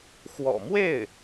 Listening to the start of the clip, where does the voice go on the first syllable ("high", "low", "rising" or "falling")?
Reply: low